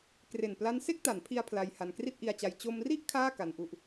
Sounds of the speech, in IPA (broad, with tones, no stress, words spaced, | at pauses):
kre˨˩npla˦˥n se˥˩k̚ta˩˦npʰi˧a̯ pʰla˧jha˧n kri˥˩t̚ʔi˧a̯t͡ɕa˧j t͡ɕo˧mri˥˩ʔ kʰaː˥˩ ka˦˥nʔu˥˩ʔ